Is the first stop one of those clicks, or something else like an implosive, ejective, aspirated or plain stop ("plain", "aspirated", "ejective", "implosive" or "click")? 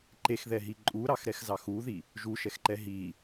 click